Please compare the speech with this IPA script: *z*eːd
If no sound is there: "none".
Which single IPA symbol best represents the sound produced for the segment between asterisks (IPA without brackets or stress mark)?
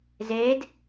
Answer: z